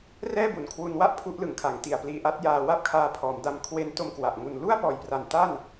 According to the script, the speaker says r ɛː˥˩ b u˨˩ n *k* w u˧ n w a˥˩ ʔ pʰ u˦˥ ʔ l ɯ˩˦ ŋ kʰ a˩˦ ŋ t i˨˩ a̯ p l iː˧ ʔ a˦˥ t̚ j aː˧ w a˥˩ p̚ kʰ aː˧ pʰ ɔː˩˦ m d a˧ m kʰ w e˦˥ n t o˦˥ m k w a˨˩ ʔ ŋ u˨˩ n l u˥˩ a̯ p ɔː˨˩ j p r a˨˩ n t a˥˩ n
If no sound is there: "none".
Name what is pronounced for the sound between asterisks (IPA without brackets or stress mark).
kʰ